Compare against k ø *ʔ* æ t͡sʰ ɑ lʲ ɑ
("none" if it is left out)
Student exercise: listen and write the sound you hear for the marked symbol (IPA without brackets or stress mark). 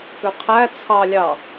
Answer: qʰ